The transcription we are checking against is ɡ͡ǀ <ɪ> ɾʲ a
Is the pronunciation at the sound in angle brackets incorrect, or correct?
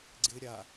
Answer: correct